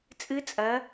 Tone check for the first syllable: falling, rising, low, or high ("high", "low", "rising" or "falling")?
rising